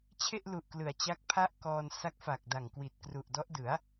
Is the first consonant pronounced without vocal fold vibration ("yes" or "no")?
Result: yes